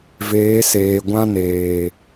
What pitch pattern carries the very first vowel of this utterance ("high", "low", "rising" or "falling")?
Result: rising